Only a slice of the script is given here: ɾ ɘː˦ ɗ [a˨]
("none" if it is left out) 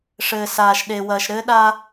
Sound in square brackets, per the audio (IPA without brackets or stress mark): a˦